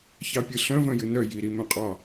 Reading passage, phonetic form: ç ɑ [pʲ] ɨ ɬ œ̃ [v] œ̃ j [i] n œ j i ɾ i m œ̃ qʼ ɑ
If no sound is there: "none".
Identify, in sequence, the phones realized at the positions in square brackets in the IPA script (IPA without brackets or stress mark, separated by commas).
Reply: pʲ, v, ɨ